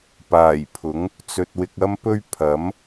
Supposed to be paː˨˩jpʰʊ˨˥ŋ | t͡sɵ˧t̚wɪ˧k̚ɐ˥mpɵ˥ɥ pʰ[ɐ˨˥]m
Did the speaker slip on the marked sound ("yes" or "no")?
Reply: no